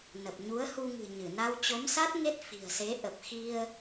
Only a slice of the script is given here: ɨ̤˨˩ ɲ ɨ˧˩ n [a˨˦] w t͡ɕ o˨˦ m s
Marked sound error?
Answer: yes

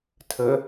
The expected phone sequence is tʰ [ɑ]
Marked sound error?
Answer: yes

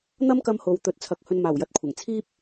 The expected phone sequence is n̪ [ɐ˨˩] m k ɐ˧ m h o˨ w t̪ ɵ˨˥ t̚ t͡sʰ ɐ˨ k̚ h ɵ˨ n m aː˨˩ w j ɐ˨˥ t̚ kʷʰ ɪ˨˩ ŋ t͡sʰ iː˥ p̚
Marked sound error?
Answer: yes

